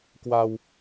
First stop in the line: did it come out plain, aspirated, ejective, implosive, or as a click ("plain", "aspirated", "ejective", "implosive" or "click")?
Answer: plain